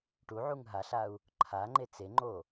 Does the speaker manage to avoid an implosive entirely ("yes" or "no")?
yes